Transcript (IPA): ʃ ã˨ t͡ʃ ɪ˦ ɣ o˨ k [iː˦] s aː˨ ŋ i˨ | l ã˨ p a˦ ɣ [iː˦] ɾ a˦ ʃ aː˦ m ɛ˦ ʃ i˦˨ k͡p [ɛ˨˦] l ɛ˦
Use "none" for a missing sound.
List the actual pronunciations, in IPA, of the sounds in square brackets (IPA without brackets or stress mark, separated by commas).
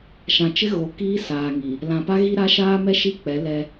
iː˦, i˦, ɛ˨˦